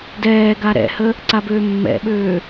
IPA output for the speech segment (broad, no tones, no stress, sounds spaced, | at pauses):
d ɛː ɡ a ɾ ɛ̰ h ə | ǀ a b øː mː ɛ̰ ɓ øː